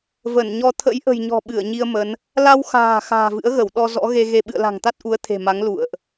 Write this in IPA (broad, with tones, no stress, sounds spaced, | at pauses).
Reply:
v ə˧˩ n ɲ ɔ˧ t̪ʰ ə̰˧˥ j ʔ ə̤˨˩ j ɲ ɔ̤˨˩ ɓ ɨ˧˩ ə̯ ɲ i˧ ə̯ m ə˨˦ n | l a˧ w x a̤ː˨˩ x a̤ː˨˩ v ɨ̰˧˥ ə̯ ɣ ə˧˩ w ɗ ɔ˧ z ɔ̰˧˥ ɣ e˧ ɣ e˧ ɓ ɨ̰˧˨ ə̯ l a̤˨˩ ŋ t̪ a˦˥ t̚ ʔ u˨˦ ə̯ t̪ʰ e̤˨˩ m a˨˦ ŋ l ṵ˧˨ ə̯ ʔ